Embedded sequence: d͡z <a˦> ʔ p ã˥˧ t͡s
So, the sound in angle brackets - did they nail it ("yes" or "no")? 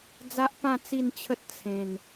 yes